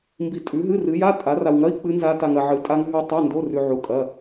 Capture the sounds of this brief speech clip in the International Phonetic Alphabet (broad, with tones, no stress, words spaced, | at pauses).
mbi˧tʼʉ˨˥ɦɨ˧˥˧ rɨ˨˥ja˧˥˧ tʼa˨˥ra˧wŋɐ˧˥˧i̯ k͡pɨ˦˥nza˦˥ ta˧ŋɐ˧ʕɨ˨˥ tʼa˦˥ŋɦʉ˦˥ tˤa˧˥˧ndo˧˥˧rʉ˧ ʕu˧˥˧kʼɐ˧˥˧